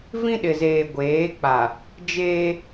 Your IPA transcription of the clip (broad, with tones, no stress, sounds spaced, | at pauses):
v ĩ˦ ɗ ɪ˨ z eː˨ ɡʷ eː˨˦ k͡p a˨ | d͡ʒ eː˦